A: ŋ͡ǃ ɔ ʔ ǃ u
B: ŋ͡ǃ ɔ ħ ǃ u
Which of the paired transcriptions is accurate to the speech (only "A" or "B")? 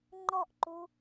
A